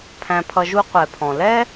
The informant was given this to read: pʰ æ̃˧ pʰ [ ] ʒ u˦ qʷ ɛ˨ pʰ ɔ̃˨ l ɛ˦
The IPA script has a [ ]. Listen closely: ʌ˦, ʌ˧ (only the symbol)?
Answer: ʌ˧